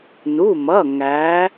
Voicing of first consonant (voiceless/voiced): voiced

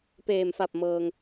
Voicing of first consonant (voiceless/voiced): voiceless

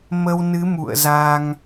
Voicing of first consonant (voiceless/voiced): voiced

